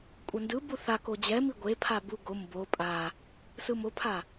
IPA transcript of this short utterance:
kʷʼ ʌ n d ɯ b u θ a k o d͡ʑ ɛ m i ɡʷ e pʰ a b u ɡ o m b o pʼ a | s ɯ m o pʰ a

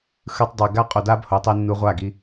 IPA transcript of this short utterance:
x ɯ˧ tˤ dˤ i˨ ɡ a˦ qʼ o˨ d a˦ b h o˨ tˤ i˧ nː u˧ ʁʷ a˦˨ ɡ i˧

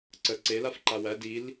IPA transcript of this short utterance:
ǀ ə ǀ e l a f ǃ a w æ d i l

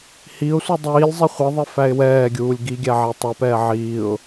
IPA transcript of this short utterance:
h i ʊ̯ sʷ i dˤ iː lʲ zˤ i χʷ i ðˤ i f æ ɪ̯ w ɛː ɡʲ uː lʲ ɡ i ɡʲ æ ʕ æ tˤ ɛ p ɛː ʕ iː ʊ̯

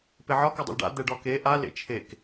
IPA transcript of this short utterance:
p e ʕ ɒ k ɒ dˤ ḛ l ɖ a̰ d̪ ɛ ɖ ɒ k e ʔ a l ḛ t͡ʃʰ e k

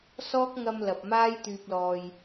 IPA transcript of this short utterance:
s ɔː˥ k̚ ŋ ɐ˧ m l ɐ˨ p̚ m aː˥ j t̪ yː˧ p̚ l ɔː˧ j

